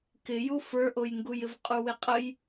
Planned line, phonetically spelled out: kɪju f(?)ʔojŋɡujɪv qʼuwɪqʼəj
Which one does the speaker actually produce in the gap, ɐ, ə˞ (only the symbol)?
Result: ə˞